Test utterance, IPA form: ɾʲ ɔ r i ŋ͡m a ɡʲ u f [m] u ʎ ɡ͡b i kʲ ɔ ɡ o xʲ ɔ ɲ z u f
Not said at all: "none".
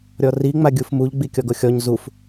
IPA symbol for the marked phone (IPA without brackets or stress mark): m